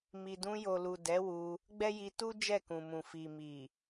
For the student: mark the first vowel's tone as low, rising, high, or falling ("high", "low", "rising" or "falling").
low